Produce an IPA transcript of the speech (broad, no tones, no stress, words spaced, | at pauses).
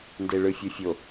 ndeɭɯfʲufʲo